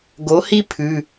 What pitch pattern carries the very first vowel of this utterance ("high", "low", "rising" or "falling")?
rising